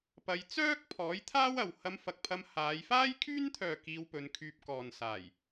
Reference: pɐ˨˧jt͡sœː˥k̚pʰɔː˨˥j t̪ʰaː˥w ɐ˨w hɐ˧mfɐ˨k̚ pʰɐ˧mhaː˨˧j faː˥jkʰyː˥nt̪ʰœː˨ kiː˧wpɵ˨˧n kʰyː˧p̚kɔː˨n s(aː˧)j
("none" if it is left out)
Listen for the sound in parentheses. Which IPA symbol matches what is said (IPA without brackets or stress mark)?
aː˨˩